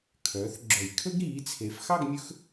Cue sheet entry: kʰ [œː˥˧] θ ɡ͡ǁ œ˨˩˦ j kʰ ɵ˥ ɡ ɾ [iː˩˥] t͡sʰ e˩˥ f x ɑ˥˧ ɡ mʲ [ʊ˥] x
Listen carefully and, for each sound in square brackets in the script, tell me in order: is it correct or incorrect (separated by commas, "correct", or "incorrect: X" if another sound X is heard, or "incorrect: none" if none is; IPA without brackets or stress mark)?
incorrect: œː˩˥, correct, incorrect: ɵ˥